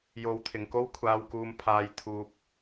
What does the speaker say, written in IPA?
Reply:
j o˨˧ w t̪ʰ ɪ˨˩ ŋ k o˧ w kʷʰ aː˨ w k uː˨ m pʰ aː˨ j t̪ʰ uː˨ p̚

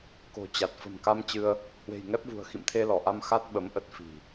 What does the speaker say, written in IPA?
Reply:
k o̤˨˩ t͡ɕ a˨˩ t̚ f ə̤˨˩ m k a˧ m t͡ɕ ɨ˧ ə̯ | h w e̤˨˩ j ŋ ɛ˦˥ p̚ v ṳ˨˩ ə̯ x ḭ˧˨ m t̪ʰ e˧ l ɔ˧˩ ʔ a˧ m x a˦˥ t̚ ɓ ə˨˦ m ʔ ə˦˥ t̚ f i̤˨˩

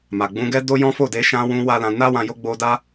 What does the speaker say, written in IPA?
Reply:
m a˨ ɡ͡b ũ˧ ɡ ɛ˦ d o˦ j ɔ̃˦ f o˦˨ d e˧ ʃ ã˧ w ũ˧ w a˦ l ã˧ n a˦ w ã˧ j o˦ ɡ͡b o˧ d a˦

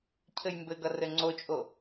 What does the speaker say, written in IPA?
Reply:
cʰ ɘ j m b ɘ ɡ ʌ r ɘ ŋ͡ǀ o t͡ʃʼ o

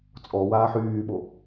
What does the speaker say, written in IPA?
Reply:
t͡sʼ ɔ w aː ħ yː ɓ o

